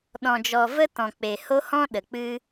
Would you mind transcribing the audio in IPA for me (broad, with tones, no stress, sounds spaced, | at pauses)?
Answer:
ɗ ɔ̃˨ d͡ʒ ɔ˨ v ə˦ t ɔ̃˨ k͡p e˨ h o˦ h ɔ̃˦ ɗ ə˨ k͡p ɨ˦